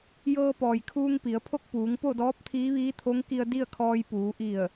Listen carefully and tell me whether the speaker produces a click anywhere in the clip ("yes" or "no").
no